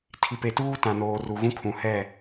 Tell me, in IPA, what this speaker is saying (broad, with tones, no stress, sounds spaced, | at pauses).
tʰ i˨ p e˨ t uː˦ t ã˨ n oː˨ r u˨ ɣ ũ˦ kʰ ũ˨ h ɛ˦˨